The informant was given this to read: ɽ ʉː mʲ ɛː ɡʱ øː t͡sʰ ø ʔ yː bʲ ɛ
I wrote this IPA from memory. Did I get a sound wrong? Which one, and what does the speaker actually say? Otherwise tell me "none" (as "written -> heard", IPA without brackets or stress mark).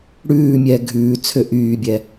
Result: øː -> ʉː